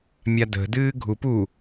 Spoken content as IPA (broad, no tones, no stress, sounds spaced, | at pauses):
mʲ a d ə̤ d ɨː ɡʱ u p u